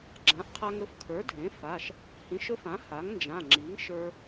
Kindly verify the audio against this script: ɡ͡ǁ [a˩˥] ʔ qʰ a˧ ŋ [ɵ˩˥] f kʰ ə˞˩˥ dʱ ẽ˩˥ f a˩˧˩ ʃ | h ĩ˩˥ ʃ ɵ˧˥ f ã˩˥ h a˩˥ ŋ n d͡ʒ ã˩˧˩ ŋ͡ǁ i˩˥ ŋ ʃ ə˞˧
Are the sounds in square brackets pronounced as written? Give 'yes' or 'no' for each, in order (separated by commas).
no, yes